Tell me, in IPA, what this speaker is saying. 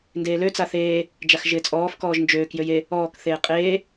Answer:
ndeːlø t͡saθeː | d͡ʒaxʒɪːt͡sʼɔːf kɔːʒnd͡ʒøːk jøje | ɔːk θeːqʼeː

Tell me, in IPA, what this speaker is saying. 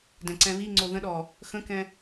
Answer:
dɛ̃ǀɛ̃βiŋ͡ǀo ðə̃ɗɔ | xə̃kɛ̃

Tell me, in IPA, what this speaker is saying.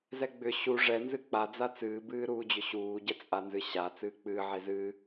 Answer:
zɛɡ͡bʏ ɕu ʐɛ nzɨk͡pa d͡zat͡sɨː bɨːɾuːd͡ʑʏɕuː ɟɛt͡sʼanzɨɕa t͡sɨːk͡pɨː ʕezɨː

